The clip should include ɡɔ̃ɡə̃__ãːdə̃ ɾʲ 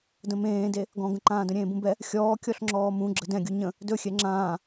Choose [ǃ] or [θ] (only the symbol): ǃ